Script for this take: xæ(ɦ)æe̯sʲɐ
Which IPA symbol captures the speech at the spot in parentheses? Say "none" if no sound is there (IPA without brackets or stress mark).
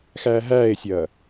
ɦ